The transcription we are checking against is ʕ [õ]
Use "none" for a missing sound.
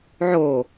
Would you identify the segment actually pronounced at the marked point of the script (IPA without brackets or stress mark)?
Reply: o